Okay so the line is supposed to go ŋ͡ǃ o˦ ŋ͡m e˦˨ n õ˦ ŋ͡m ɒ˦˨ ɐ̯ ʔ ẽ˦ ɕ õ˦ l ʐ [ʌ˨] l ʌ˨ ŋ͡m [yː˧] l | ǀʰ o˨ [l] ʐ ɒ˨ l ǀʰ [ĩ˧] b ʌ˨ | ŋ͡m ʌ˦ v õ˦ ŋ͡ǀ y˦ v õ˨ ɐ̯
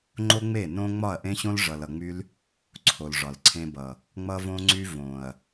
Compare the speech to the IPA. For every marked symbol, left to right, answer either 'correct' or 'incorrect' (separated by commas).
correct, incorrect, correct, incorrect